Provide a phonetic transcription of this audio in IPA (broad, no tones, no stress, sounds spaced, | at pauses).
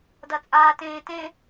d ɐ t͡sʼ aː t ẽː t ẽ